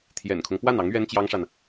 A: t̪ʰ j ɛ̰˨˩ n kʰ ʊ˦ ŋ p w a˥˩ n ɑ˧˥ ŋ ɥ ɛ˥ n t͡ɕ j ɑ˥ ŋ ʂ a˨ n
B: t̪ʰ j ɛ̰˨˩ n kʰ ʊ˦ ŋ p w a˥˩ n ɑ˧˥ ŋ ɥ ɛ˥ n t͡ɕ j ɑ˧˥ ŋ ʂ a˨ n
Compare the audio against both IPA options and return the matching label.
A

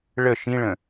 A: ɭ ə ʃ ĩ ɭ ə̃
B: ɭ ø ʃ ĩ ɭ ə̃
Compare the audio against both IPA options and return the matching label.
A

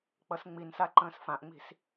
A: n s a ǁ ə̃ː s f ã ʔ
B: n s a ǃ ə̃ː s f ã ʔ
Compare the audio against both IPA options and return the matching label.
B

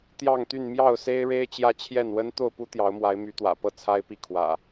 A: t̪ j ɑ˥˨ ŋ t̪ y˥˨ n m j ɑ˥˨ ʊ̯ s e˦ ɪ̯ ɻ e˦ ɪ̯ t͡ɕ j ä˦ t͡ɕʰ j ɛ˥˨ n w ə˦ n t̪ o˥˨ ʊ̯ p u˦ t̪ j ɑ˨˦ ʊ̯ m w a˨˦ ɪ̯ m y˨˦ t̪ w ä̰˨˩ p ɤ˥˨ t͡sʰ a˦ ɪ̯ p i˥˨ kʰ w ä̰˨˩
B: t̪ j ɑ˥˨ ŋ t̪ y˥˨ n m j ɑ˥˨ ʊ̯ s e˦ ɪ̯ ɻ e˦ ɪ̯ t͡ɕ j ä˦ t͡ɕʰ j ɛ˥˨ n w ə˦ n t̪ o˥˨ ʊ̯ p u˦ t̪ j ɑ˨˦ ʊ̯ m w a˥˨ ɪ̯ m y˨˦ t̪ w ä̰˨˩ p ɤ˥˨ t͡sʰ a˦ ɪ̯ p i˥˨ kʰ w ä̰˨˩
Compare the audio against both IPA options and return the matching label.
A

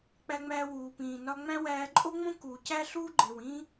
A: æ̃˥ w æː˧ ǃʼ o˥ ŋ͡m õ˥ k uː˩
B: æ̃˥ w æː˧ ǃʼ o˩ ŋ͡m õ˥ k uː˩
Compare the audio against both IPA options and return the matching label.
A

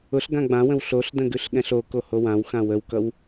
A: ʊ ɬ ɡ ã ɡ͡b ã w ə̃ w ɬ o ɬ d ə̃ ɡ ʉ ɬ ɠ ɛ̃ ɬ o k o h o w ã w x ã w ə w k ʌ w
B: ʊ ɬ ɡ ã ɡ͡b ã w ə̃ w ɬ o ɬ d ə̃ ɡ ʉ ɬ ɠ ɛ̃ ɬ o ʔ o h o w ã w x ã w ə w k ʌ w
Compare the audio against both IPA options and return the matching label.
A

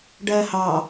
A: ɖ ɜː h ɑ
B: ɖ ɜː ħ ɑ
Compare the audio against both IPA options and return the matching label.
A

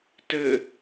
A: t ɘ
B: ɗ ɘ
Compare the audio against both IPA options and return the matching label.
A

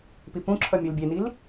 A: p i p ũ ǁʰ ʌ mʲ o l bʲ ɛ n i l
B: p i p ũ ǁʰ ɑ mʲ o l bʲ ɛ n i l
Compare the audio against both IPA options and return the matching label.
A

